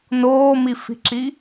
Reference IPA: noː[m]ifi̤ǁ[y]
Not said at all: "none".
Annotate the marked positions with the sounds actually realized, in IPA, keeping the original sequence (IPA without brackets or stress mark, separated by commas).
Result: m, i